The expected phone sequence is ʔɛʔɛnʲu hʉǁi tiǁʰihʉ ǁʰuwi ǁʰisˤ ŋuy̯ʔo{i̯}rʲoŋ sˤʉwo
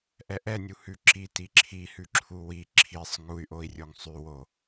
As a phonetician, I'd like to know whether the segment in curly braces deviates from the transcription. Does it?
no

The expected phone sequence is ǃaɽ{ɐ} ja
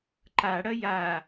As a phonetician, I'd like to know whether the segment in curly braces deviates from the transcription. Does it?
no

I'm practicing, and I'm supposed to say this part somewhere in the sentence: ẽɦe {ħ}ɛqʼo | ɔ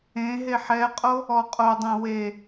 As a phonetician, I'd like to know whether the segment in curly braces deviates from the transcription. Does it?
no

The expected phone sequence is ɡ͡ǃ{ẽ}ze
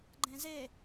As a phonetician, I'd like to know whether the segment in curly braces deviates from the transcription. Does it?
no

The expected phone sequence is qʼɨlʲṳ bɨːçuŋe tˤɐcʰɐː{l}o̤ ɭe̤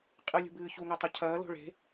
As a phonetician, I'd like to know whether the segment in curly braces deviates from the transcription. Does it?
no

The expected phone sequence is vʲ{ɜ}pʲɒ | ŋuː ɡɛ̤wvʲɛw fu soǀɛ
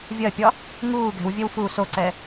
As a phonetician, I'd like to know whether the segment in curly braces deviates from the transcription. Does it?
no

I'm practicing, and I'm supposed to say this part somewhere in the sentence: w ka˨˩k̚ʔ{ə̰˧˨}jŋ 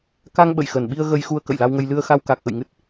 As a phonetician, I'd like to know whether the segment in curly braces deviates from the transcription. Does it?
no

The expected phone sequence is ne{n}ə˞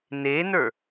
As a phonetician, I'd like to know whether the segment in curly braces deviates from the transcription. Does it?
no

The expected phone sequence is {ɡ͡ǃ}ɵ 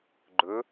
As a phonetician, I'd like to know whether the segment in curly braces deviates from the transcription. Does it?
no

